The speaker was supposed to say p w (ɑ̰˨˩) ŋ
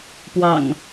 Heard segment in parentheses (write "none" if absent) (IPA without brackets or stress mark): ɑ̰˨˩